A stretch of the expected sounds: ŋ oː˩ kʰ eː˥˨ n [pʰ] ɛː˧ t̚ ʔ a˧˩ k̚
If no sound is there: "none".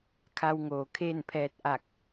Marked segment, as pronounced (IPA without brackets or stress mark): pʰ